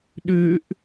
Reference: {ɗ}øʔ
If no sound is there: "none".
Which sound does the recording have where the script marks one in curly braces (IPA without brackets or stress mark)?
ɗ